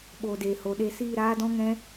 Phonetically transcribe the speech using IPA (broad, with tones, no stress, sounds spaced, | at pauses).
ɓ o˨ d e˨ h o˨ ɗ e˧ s iː˦˨ ɾ aː˦ d ɔ̃˦ ŋ ɛ̃˦